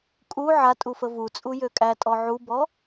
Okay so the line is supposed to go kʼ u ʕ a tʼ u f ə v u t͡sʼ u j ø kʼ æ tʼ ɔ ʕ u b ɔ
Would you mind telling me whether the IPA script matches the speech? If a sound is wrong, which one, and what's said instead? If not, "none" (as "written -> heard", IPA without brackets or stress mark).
none